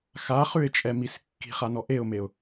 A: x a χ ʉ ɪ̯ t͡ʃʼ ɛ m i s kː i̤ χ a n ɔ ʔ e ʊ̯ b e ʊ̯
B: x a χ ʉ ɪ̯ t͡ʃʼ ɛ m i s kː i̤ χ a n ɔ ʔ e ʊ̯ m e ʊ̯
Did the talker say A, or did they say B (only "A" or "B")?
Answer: B